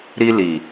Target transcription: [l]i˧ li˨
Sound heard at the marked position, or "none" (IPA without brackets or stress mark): ɾ